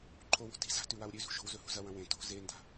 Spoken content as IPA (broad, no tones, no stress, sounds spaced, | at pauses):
ǃʰ o w o̤ t i̤ z a̤ t ʉ w a w ɾʲ ʉ z ṳ ʃ o̤ w z ɵ h ṳ z ɐ w ɐ̃ w ẽ t o̤ z e n d a̤